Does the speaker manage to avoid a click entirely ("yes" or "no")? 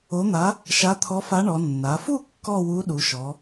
yes